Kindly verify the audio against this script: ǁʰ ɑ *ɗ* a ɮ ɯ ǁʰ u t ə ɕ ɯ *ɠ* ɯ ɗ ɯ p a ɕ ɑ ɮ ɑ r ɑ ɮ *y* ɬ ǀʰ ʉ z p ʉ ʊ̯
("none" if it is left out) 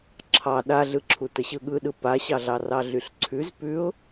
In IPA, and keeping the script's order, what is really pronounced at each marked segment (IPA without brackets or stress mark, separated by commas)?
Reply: ɗ, ɠ, y